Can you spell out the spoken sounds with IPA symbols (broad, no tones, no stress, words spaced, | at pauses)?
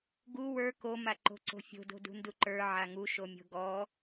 ɡu wə˞ komaǃo̤ ǀo̤fʲo̤do̤ dṳnduǃə˞ ʕaŋuʃomʲo̤ ɡɔ